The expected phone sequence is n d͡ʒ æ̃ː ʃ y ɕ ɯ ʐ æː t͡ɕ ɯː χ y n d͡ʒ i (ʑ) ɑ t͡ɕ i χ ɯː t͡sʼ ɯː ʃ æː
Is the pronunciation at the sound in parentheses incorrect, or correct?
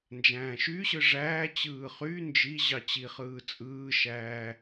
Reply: correct